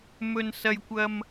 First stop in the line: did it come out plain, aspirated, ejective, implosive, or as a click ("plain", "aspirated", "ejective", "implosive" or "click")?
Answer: plain